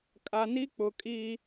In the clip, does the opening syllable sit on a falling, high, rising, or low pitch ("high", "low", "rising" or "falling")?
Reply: low